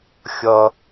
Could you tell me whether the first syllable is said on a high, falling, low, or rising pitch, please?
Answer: low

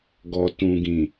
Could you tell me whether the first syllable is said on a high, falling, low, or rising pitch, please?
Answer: low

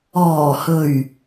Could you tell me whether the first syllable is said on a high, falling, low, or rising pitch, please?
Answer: low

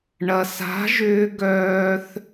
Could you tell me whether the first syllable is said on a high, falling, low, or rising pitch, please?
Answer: low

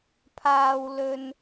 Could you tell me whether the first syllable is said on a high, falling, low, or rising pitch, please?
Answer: high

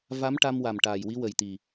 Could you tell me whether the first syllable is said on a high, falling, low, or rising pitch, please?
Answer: rising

